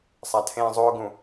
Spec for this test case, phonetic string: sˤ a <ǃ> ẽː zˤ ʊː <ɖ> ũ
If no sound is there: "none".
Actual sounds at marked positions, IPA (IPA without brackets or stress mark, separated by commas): tʰ, ɡ